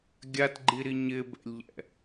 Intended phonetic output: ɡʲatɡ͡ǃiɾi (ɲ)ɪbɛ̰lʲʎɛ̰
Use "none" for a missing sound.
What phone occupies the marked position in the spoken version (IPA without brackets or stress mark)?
ɲ